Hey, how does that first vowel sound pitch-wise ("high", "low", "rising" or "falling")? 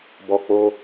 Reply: low